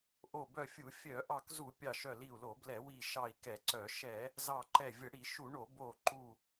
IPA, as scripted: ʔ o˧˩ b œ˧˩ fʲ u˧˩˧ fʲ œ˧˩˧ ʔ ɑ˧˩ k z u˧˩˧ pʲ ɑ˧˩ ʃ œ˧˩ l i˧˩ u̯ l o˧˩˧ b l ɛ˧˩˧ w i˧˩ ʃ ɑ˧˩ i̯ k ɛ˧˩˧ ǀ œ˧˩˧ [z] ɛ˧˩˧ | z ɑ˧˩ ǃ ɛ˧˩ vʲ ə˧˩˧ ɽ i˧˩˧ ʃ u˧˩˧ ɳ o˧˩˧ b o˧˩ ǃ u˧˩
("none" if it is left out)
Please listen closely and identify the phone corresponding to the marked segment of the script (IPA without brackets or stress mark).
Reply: ʃ